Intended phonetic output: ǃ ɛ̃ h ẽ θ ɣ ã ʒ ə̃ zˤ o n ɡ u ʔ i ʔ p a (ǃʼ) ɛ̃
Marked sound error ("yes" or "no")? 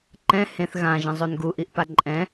no